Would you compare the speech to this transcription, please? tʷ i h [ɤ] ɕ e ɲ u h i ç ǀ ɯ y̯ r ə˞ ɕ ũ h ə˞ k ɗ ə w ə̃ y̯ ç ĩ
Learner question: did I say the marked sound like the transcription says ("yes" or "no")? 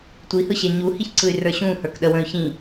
no